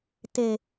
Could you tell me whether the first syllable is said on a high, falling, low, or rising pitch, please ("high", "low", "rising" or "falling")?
low